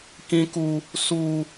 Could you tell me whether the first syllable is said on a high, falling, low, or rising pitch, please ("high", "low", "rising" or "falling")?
high